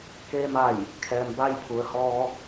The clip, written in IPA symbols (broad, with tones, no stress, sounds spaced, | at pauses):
k eː˧ m a˧˩ j | kʰ ɛː˩ m b a˧ j pʰ u˩ ə̯ h ɔː˧